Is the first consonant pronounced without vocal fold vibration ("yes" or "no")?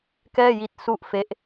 yes